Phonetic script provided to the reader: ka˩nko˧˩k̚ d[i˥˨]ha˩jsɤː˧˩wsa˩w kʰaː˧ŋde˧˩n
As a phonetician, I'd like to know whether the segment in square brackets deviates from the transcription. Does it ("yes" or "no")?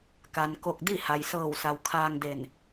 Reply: no